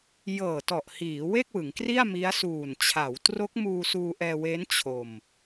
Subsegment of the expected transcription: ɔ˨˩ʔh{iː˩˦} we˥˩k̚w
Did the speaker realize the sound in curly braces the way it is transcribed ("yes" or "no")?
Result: yes